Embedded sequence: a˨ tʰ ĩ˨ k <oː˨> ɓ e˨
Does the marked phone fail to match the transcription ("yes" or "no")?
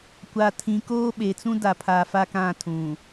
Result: yes